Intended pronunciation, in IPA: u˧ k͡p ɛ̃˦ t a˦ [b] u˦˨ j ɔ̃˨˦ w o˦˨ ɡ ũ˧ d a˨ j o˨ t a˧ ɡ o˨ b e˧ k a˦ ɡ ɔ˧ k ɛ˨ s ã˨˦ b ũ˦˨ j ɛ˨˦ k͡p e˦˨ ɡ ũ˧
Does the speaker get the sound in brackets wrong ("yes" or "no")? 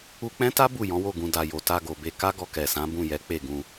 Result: no